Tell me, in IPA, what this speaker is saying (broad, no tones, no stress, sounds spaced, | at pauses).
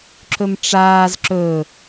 ǁ ɵ m ʈ͡ʂ aː z ǁ ɵ